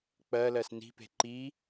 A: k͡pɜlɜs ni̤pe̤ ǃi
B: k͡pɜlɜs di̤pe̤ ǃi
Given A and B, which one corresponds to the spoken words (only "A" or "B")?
A